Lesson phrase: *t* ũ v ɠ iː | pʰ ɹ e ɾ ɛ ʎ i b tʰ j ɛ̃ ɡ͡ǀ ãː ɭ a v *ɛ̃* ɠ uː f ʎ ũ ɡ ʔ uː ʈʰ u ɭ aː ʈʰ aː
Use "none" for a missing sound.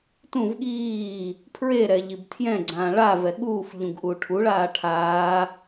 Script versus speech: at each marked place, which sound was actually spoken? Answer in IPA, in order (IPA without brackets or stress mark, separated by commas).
t, ɛ